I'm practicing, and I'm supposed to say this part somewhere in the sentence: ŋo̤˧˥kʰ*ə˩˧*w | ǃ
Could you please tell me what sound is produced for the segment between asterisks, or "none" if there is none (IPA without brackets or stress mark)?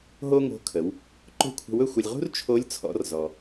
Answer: ə˩˧